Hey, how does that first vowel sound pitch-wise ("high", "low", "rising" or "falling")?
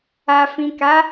low